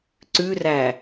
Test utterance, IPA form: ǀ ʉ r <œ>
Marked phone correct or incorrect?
incorrect